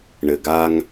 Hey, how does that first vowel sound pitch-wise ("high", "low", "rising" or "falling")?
low